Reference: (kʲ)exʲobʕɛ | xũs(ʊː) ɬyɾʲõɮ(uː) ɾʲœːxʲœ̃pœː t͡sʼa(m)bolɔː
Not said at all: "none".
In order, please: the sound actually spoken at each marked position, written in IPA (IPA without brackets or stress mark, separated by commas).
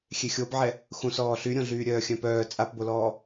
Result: xʲ, ɔː, yː, p